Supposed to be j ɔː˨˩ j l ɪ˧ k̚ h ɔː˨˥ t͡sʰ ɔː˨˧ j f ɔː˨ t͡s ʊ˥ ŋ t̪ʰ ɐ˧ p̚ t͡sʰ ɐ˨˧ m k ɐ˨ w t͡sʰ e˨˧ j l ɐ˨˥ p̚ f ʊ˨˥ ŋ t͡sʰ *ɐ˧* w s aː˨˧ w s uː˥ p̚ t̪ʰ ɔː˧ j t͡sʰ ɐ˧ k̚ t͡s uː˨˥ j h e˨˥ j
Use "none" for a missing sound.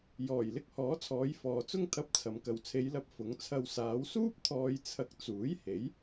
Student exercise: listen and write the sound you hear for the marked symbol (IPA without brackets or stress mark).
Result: ɐ˧